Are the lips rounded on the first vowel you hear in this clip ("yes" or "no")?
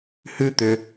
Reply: yes